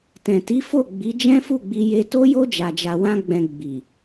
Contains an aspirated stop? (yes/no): no